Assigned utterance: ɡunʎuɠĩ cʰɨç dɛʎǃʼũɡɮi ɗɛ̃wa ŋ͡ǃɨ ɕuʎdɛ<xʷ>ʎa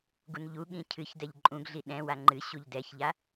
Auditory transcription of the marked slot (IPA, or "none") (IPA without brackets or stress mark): ç